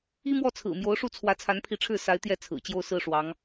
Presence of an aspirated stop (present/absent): present